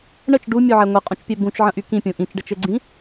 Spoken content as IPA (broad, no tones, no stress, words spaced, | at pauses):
ɳət͡ʃ ɖumʲoʕɛ ŋʷɘqʼũt͡ʃpʲɛ bũt͡ʃʕə̃ʔy kĩpʲũ ʔĩt͡ʃɖət͡ʃɘɡ͡ǀĩ